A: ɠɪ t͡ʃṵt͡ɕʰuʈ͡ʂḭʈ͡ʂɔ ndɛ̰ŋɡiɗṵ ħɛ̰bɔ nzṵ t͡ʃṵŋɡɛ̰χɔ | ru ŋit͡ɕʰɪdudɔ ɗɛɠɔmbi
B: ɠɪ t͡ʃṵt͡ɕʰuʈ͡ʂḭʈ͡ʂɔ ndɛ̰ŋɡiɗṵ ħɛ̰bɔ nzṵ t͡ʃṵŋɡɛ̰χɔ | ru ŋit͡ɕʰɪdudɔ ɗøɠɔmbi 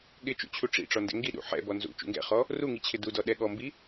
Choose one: A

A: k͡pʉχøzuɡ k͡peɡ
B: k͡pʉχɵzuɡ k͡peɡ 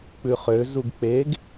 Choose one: A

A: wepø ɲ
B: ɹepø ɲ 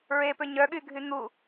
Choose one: B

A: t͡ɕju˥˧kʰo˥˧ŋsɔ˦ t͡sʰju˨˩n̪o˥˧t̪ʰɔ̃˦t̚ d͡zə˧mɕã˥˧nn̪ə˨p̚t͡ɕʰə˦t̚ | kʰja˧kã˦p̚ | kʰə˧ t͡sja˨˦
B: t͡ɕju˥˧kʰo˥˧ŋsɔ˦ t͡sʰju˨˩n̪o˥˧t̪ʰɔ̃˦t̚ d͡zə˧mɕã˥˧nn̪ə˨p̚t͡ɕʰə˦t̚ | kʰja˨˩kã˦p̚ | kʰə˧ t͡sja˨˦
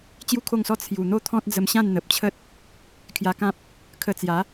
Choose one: A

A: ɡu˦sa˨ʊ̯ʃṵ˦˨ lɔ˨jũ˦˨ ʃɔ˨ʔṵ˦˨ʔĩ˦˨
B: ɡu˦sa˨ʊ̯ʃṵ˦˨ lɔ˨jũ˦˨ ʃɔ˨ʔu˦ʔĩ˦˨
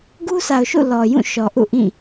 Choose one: A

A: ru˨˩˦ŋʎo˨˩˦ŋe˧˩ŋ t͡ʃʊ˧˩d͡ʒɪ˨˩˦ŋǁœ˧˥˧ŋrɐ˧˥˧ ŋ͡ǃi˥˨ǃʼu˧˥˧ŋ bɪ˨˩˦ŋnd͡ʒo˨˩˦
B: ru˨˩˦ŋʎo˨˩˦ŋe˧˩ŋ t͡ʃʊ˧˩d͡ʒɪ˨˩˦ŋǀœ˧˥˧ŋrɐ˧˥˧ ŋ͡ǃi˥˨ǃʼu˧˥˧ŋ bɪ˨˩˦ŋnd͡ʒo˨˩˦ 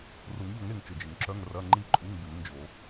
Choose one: A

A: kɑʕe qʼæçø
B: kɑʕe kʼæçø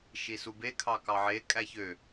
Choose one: B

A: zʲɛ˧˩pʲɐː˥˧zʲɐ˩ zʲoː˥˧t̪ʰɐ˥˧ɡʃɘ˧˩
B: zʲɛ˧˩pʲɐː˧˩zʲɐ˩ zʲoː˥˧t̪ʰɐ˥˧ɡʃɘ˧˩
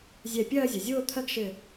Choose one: A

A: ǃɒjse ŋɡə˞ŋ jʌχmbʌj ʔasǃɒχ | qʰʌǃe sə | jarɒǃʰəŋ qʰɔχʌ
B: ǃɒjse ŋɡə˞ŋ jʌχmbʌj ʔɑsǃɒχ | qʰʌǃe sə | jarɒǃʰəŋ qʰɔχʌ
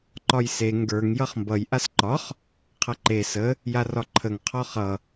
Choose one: A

